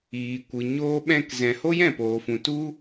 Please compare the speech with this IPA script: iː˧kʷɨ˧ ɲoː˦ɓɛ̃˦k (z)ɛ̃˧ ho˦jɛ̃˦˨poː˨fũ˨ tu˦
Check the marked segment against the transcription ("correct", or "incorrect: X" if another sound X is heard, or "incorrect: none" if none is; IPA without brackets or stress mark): correct